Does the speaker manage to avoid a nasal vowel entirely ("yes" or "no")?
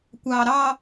yes